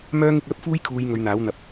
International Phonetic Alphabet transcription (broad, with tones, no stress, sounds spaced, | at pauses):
m œː˥ ŋ ɪ˧ k̚ œː˥ p̚ f uː˥ j kʰ uː˨˧ j ŋ ɵ˨˧ ɥ n̪ aː˨˥ w n̪ ɐ˨˥ p̚